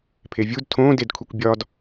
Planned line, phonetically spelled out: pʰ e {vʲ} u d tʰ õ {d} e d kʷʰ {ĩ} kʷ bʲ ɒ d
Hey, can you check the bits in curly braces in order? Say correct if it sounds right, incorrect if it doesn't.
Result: correct, correct, incorrect

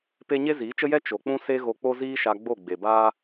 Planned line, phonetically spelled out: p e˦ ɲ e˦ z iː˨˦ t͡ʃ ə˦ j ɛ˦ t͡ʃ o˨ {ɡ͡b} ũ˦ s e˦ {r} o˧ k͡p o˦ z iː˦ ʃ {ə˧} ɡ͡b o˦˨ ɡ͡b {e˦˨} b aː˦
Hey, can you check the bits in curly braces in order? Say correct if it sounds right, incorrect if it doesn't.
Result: incorrect, incorrect, incorrect, incorrect

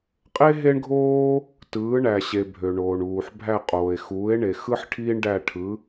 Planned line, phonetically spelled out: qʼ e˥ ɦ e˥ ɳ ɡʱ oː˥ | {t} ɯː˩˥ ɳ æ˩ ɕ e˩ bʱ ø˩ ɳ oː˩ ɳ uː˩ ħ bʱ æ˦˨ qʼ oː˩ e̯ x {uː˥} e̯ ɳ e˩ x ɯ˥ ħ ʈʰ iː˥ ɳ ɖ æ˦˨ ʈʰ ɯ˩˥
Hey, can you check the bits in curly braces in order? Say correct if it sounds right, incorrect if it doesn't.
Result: correct, incorrect

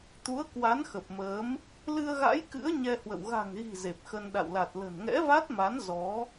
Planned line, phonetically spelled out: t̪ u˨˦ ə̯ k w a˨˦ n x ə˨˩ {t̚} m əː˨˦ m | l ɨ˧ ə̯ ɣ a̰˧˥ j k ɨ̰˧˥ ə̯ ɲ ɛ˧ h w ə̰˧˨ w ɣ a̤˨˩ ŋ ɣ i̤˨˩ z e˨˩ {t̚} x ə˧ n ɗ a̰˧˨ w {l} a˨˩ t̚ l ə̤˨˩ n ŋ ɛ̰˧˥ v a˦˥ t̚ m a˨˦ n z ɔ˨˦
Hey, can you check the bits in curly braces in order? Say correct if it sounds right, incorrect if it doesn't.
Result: incorrect, incorrect, correct

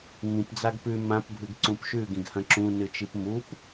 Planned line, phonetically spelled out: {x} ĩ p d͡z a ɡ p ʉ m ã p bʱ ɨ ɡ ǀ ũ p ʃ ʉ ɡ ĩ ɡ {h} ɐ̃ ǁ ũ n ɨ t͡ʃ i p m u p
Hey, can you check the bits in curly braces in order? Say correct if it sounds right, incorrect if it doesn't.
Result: incorrect, correct

